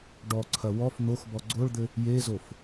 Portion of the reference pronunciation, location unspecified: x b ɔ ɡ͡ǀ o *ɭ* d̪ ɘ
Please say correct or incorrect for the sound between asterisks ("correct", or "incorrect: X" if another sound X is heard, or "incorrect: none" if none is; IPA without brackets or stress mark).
correct